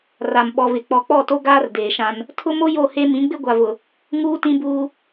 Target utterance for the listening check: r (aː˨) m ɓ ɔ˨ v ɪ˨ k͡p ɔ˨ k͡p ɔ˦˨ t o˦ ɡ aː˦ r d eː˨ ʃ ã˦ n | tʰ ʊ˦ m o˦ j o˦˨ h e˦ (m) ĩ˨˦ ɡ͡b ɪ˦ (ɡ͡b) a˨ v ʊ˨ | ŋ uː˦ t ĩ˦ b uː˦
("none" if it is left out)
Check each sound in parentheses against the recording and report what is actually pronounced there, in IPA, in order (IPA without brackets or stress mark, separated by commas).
a˨, m, ɡʷ